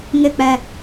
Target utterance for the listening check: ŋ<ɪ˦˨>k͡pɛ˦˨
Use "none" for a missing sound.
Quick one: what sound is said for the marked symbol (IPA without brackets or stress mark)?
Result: ɪ˦˨